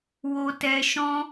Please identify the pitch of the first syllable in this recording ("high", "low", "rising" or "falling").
low